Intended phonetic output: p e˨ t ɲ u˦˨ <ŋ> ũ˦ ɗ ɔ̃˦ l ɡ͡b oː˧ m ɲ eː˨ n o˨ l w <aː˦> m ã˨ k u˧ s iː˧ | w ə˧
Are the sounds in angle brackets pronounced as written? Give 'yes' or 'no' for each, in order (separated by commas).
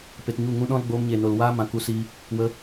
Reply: yes, yes